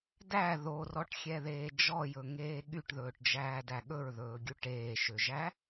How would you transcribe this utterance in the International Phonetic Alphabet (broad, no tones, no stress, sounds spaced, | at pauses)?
d æ ð o r ɔ ʈ xʲ ɛ ð eː d͡ʒ ɔ j ɵ ŋ eː ɠ y ʈ ð ɵː ʈ d͡ʒ æː d æ ɠ ɵ ɹ ð ɵː ɡʲ u ʈ eː ʃ ø ʒ æ